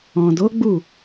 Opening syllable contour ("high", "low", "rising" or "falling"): low